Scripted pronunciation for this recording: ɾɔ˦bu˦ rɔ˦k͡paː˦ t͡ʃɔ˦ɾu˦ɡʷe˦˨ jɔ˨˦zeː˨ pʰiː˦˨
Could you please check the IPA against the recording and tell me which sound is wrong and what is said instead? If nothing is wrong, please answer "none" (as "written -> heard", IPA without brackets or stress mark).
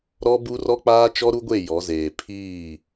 none